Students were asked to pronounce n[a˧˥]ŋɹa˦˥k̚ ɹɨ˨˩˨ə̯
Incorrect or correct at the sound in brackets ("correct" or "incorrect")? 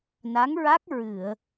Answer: correct